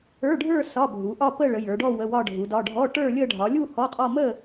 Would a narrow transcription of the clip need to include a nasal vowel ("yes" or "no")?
no